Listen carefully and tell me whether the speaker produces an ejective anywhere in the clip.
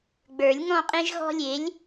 yes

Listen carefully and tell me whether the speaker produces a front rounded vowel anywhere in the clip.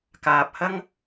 no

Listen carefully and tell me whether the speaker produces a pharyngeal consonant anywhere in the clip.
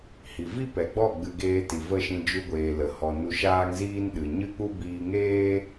no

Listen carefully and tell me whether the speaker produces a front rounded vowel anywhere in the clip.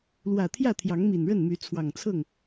yes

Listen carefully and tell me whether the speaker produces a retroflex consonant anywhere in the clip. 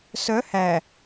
no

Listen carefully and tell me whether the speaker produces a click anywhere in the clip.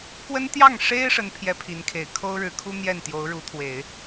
no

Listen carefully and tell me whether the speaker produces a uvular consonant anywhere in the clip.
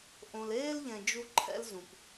no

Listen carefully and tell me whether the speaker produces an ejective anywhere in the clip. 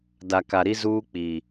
no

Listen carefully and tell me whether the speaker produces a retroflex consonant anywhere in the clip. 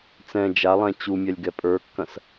no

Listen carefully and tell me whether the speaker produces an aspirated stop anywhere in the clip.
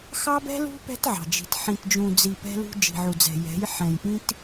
no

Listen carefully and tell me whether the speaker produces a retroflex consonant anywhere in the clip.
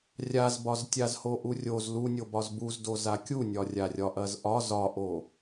no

